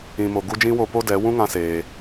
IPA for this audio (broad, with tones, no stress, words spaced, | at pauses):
ĩ˧mo˧ ɡu˦ d͡ʒĩ˦wo˧ po˦dɛ˨˦ wũ˦ŋã˧seː˨